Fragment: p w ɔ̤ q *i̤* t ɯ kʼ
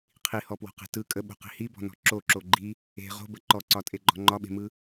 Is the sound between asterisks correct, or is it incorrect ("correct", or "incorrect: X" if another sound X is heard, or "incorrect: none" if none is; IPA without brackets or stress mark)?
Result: incorrect: e̤